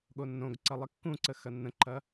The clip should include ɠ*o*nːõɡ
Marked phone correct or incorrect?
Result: correct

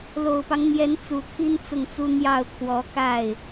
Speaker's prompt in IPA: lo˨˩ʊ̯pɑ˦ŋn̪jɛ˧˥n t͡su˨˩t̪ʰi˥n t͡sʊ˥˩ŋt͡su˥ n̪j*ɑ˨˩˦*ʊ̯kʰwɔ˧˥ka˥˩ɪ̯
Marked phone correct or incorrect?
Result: incorrect: ɑ˥˩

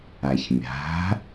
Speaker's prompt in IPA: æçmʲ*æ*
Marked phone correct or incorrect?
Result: incorrect: æ̤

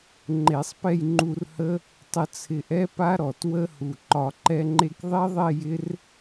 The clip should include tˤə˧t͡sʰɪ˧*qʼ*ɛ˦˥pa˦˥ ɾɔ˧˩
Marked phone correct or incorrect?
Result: incorrect: ʔ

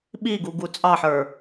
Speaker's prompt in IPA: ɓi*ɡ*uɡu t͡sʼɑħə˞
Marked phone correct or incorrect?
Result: correct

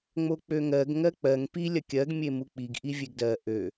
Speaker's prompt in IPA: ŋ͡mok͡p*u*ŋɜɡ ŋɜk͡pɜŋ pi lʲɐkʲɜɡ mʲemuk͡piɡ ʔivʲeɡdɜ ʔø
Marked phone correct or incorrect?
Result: incorrect: ø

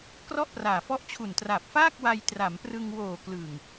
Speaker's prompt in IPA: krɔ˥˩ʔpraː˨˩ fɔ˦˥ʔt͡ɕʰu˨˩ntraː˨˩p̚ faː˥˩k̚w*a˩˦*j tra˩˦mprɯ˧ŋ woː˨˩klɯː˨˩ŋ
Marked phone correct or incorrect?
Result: incorrect: a˧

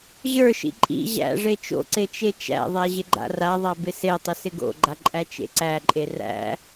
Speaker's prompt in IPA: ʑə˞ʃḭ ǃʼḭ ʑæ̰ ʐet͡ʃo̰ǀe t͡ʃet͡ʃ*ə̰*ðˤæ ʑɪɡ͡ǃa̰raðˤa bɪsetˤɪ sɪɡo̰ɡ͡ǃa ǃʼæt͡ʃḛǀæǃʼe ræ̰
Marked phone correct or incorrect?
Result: incorrect: æ̰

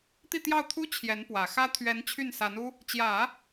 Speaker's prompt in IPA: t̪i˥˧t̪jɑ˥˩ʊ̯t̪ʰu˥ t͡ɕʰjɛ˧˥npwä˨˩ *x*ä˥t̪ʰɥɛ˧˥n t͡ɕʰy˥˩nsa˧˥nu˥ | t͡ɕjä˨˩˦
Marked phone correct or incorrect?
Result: correct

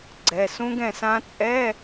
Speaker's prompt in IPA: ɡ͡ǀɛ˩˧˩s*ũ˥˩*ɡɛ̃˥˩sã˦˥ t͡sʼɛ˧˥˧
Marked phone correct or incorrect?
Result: incorrect: ũ˦˥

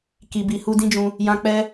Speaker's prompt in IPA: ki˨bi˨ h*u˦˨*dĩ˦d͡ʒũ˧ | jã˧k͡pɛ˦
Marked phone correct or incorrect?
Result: incorrect: u˧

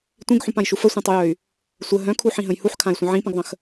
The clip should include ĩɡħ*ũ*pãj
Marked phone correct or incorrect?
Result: correct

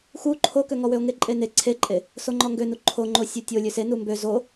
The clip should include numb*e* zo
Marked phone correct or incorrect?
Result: incorrect: ø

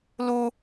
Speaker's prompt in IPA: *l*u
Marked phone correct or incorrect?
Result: correct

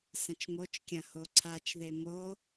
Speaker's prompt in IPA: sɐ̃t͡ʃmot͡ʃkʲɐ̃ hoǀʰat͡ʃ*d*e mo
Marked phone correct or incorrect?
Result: incorrect: ð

